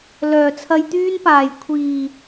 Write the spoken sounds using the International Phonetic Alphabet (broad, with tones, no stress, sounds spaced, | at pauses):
l œː˨˩ t͡sʰ ɐ˧ j t̪ yː˥ n p aː˨˩ j kʷʰ iː˨˩